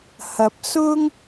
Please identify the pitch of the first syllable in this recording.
rising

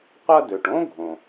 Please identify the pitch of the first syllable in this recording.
high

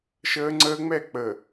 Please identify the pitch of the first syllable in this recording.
high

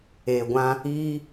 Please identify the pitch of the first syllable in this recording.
low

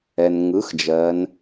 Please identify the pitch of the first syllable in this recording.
low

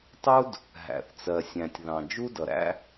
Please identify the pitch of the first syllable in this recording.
high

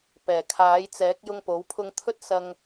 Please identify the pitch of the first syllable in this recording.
low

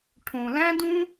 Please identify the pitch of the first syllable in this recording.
low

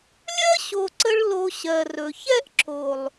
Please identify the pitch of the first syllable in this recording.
high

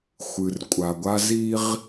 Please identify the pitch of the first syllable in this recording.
low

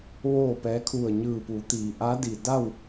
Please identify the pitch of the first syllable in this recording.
falling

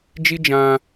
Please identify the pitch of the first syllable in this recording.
high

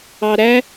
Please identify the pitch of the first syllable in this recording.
low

